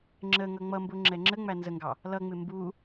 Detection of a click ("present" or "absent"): present